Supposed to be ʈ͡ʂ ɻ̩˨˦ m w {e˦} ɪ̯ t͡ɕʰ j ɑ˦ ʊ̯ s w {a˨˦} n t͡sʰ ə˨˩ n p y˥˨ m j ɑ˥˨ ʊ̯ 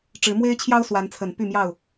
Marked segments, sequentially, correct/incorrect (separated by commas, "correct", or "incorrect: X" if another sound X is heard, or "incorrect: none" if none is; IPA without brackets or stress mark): correct, correct